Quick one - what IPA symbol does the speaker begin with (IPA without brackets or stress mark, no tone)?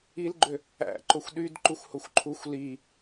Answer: i